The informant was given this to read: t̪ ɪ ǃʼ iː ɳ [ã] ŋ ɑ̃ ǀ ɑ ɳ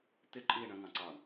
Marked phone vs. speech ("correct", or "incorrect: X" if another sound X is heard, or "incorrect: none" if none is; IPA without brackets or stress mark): incorrect: ə̃